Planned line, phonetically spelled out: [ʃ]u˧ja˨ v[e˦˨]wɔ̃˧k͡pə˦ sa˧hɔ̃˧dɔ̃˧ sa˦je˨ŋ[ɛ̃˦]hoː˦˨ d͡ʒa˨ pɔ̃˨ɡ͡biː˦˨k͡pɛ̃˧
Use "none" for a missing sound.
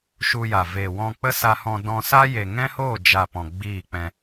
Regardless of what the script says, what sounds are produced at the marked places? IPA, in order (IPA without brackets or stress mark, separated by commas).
ʃ, e˨, ɛ̃˦